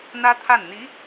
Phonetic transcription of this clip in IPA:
n̪ä˥t̪ʰa˥˩nn̪i˧˥

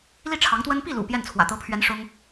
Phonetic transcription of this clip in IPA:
li˥˩ʈ͡ʂʰɑ˧˥ŋt̪wə˥n pi˥˩lṵ˨˩ pjɛ˥˩nt͡sʰwä̰˨˩ t̪ɤ˧˥pʰɥɛ˧˥n ʂʊ˥ŋ

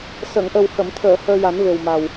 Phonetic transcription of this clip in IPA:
sə˨˩˨ŋʔə˨˩whə˨˩˨mt̪ʰəː˨˩˨ həː˧ja˨˩˦n ve˨˩wma˨˩w

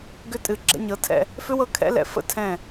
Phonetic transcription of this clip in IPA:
ɡʏ˦ tʼɨ˨ɡ͡ǁɛ̰˧ɲɤ˨˦tʰɛ̰˧ | fʏ˦wɤ˧kʰɛ̰˨˦ lɛ̰˨ fə̰˦tʰɛ̃˦˨

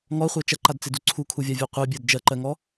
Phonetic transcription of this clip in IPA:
ŋɔχʷɜ t͡ʃɐǃadt͡sedu ǀʰukʰuvʲavʲa qʷebʲɜd d͡ʒɜǃɜŋɔ

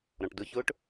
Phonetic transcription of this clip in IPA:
ɾɔ̃ʈdʊçʊːʈ

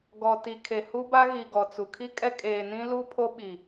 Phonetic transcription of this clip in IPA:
ɡɔ˨ti˨ kʰe˨hu˦ba˦ ɣi˨ɡɔ˨ t͡su˨ kʰi˦kʼɛ˦ kʼeː˨nĩ˦ lu˦ pʰo˦ɓi˨

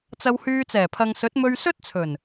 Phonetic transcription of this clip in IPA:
t͡sɐ˧whyː˧ t͡sɛː˨˩pʰɐ˨ŋsɵ˨˥t̚ mɵ˧ɥsɵ˥t̚t͡sʰɵ˨˩n

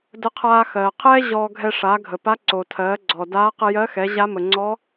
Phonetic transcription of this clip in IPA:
də˧qʰaː˧xɜː˩qʰɛː˥ ʑɔː˧ ɡʱɛ˧ʂaː˩˧ɡʱə˩pa˧˥ ǀo˩tʰɜː˩˧ ɡ͡ǀɔː˩daː˧˥ qə˧jɜ˧˥xɛ˩˧ ʑa˧˥mə˩ ŋ͡ǀɔ˧˥

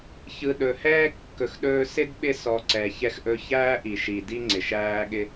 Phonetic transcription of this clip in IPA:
çɯ˨ɗɵ˩ hɛː˥kːɵ˨xɗɵː˦ sɪ˥dɓɪ˦sɔ˨ ǀɛ˨ çɛ˦xʔɵ˦ çæː˦ʔi˩ʃi˩ di˥ŋ͡ǀɪ˩ʃæː˦ɠɪ˦

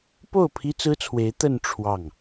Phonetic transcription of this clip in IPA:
po˥˩ʊ̯ pʰi˥t͡sɹ̩˥t͡sʰwe˧˥ɪ̯ t̪ə˥˧n ʈ͡ʂʰwɑ˥˩ŋ

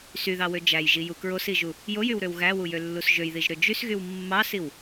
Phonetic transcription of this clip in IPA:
syðɑwø d͡ʒæjʒiju kɹosiʒu | jojywɾøw ɣæwujølːus ʒøjðiʒɾø d͡ʒysɣyw mːɑsiw

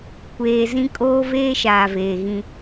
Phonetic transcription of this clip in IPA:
kʷeː˨zĩ˦ kʼoː˦veː˦ʃaː˨ veː˨ɣĩ˦

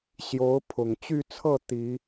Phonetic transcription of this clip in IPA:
ɕjo˧˥ʊ̯pʰʊ˨˩ŋt͡ɕy˥˧t͡sʰɤ˥˩ t̪i˨˩˦

